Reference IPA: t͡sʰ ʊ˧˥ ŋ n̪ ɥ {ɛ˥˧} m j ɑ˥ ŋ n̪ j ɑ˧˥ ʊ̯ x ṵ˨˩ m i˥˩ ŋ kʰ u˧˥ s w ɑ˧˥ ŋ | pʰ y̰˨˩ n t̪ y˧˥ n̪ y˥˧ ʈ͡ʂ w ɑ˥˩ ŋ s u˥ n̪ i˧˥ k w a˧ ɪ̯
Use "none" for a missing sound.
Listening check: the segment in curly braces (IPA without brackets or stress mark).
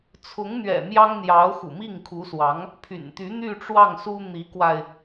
ɛ̰˨˩